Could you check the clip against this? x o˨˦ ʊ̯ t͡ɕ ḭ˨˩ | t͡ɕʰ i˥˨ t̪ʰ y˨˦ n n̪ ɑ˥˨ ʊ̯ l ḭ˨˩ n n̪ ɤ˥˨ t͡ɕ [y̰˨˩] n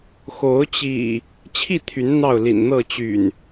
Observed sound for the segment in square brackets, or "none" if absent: y̰˨˩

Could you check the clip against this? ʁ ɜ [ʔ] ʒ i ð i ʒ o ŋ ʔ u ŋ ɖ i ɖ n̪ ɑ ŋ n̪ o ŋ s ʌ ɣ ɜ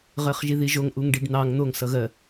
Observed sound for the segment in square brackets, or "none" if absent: χ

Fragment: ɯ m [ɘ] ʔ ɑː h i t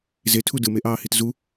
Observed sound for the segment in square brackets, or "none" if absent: e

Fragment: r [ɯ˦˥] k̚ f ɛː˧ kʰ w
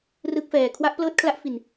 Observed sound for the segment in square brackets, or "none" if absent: ɯ˦˥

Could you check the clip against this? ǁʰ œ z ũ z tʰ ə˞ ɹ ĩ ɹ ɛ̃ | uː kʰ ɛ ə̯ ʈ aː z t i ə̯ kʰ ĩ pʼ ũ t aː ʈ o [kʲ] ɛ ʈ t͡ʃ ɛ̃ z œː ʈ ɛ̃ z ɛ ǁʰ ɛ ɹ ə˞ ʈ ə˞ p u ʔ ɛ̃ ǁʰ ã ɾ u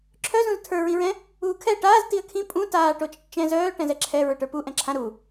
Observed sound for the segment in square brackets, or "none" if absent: t͡ʃ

